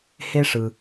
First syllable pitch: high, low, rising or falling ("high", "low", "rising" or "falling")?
high